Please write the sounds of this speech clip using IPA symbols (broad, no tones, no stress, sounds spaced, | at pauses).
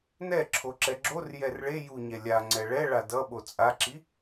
n ɛ ǁʰ o ǁ ɛ ɡ͡ǁ o r j ɛ r ɭ e j u ɲ ɛ lʲ a ŋ͡ǀ ɛ ɭ ɛ ɭ a d ʌ ɓ o t͡sʼ a ǁ i